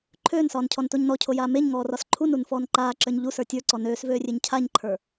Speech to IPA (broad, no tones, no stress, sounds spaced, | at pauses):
ǃʰ øː n s ɒː n cʰ ɔ n t o ɲ n ɔ cʰ o j aː m e ɲ ŋ ɔː r ɒ s ǃʰ u n u n f ɔː n ǃ aː ǁ ə˞ ɲ ʎ u s ə˞ tʲ ə˞ ǀ ɔ n øː s v øː rʲ e ɲ cʰ a ɲ ǃʰ ə˞